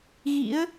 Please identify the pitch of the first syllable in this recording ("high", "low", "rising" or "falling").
rising